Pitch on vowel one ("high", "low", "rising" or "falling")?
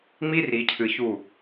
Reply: high